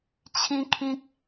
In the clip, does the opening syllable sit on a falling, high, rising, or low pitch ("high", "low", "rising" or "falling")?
high